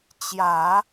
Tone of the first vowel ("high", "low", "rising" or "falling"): low